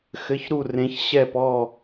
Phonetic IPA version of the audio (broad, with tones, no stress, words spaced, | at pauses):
xɘ˧˥˧çɾu˥˧rẽ˧˥ç ɕɛ˥˧pɔ˥˧